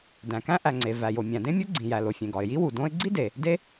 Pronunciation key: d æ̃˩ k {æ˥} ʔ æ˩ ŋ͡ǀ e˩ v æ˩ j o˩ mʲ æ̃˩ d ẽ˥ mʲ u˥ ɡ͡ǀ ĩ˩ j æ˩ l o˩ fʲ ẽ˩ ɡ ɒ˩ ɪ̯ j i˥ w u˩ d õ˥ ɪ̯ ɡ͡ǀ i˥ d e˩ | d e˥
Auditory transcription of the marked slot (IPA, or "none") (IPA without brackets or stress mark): æ̃˥